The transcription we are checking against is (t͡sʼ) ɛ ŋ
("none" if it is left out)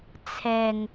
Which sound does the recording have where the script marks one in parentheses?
t͡sʰ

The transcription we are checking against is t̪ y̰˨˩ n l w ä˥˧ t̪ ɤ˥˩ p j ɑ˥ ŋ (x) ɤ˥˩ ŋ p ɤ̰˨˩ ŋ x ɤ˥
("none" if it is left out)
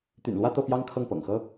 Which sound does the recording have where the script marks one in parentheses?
kʰ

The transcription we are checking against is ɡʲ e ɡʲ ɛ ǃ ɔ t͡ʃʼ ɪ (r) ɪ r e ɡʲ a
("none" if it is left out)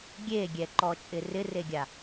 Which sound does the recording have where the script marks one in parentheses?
r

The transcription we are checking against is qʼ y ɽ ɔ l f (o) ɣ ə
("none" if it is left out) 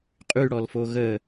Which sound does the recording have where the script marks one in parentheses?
o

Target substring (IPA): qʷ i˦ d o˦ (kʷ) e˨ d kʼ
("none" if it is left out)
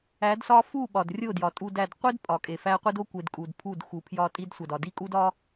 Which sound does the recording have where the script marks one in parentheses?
kʷ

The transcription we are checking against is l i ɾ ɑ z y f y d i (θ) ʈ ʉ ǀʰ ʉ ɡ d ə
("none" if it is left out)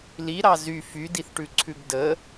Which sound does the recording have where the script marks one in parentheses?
θ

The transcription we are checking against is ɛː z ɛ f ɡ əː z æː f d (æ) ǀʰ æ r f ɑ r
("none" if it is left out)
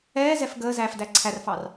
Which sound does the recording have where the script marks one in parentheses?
æ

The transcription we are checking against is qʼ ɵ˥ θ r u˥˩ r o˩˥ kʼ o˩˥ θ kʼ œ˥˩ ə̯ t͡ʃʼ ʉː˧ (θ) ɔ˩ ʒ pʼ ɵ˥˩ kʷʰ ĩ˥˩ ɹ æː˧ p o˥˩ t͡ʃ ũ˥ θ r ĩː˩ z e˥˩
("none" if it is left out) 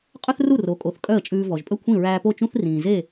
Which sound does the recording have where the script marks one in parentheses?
v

